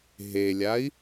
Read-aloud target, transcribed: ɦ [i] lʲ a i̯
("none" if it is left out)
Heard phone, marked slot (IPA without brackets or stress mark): e